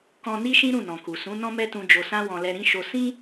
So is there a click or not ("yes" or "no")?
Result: no